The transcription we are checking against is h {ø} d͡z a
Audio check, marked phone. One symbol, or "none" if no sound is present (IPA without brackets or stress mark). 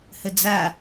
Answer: ə